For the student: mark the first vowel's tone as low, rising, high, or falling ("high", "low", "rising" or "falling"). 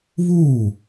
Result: falling